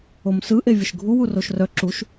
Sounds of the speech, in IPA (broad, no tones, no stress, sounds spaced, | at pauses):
o m s ɯ ʔ e vʲ ə ʃ ɡʱ u w u r o ʃ r œ ǁ u ʃ